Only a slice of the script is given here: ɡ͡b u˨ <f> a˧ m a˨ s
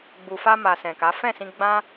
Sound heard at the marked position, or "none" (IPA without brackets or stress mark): f